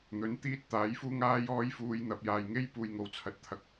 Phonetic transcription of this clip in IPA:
n̪ɵ˨˥n t̪iː˥t̚t̪aː˨˥jfuː˥ŋaː˥ jɔː˥jfuː˧j n̪ɐ˨p̚jaː˨jŋe˥jpuː˨j ŋo˨wt͡sʰɐ˨˥t̚ t̪ʰɐ˧k̚

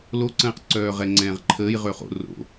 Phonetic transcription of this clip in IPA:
loǀə̃ːqǀœː ʁɛŋ͡ǀɛ̃ːʁǃʰəːj ʁøχo̰ ro̰

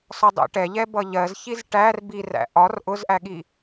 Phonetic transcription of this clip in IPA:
sɒdˤɛ̰ʈɛʎɛ bʌʎɜzçiz ʈær biræ̰ ʔɒr ʔʊzʔæɠi

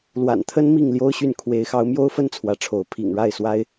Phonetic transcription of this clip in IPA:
lwa̰˨˩nt̪ʰə˦n mi˥˨ŋljo˦ʊ̯ɕy˥˨n kʰwe˨˦ɪ̯xɑ˨˦ʊ̯mjo˦ʊ̯fə˦n t͡sʰwä˨˦ʈ͡ʂʰo˨˦ʊ̯ pʰḭ˨˩ŋɻa˥˨ɪ̯swa˦ɪ̯

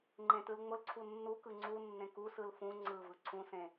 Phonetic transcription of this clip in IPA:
ŋ͡ǃẽtɯlŋ͡mʊlǀʰu nːukɯ ŋ͡ǀu nːẽkusɯl fũ ŋ͡ǀɯvɯ ǀʰũsẽ

